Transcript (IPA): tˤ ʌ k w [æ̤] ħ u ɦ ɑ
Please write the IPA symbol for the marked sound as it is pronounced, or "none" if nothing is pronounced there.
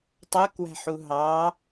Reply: æ̤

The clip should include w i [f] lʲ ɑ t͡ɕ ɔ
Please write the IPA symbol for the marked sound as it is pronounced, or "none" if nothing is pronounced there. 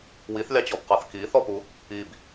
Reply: θ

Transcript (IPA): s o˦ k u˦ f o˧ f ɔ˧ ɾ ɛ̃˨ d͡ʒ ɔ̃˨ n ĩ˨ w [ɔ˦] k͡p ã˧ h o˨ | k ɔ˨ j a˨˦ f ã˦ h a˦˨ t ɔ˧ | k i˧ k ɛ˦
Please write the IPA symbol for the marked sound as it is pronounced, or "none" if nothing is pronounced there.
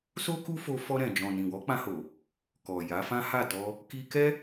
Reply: ɔ˨˦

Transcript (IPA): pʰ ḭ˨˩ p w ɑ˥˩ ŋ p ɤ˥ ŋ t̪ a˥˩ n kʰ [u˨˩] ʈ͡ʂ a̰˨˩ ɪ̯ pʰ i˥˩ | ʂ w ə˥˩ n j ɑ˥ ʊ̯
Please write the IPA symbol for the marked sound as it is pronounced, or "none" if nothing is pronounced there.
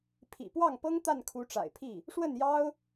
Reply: u˧˥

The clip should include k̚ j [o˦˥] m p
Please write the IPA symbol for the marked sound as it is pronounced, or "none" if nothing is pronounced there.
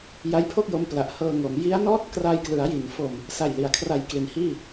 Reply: o˦˥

